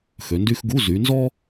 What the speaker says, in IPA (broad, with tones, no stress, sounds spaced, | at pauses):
x ø˨˦ n d y˥ x ɡ u˧˥˧ z y˨˦ n z ɔ˥